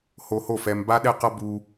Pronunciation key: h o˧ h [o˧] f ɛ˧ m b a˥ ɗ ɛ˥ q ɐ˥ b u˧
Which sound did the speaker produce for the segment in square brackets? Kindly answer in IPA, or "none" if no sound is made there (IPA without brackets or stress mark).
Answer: o˥˩